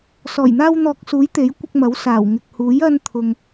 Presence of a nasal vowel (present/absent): absent